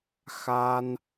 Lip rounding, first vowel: unrounded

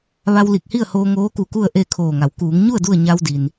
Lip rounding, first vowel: unrounded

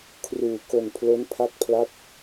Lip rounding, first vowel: rounded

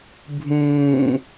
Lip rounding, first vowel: rounded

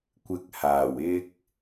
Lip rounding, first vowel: unrounded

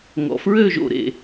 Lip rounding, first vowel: rounded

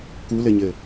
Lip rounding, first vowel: rounded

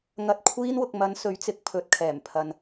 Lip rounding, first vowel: unrounded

